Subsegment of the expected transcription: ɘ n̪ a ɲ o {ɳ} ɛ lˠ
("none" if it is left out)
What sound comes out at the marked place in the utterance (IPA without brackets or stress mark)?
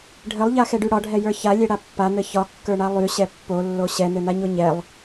ɲ